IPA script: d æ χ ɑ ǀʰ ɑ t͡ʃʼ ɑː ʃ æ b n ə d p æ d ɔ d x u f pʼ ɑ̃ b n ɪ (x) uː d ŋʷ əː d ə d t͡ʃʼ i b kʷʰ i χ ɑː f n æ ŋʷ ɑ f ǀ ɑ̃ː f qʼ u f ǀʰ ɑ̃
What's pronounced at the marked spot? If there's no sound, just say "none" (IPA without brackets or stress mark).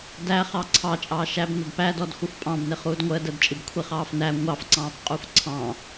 χ